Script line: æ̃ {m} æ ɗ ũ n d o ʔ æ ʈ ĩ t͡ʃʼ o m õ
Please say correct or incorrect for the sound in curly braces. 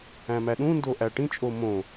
correct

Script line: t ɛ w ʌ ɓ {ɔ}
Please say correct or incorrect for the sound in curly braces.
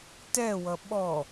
correct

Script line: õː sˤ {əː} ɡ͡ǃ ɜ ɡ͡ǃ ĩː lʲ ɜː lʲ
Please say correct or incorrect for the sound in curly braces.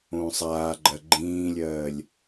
incorrect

